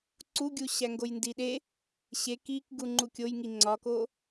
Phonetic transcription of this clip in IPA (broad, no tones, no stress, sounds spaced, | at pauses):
ǀ u ɡʲ u ɕ æ ŋ ɡ o j n d i ɗ e | ɕ e k i k ɡ u ŋ͡ǃ u kʲ o j ŋ i ŋ͡ǀ ɒ k o